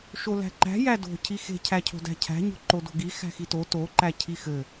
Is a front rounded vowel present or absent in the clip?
absent